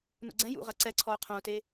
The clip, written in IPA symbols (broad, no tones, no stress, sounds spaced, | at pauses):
n ṵ ɡ͡ǀ ɛ̃ j ṵ ʁ ɐ ǀ ɛ ǀʰ ɔ u̯ qʰ õ u̯ t e